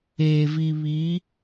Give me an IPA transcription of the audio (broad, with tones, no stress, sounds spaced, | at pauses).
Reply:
eː˨ v i˨ β i˨˦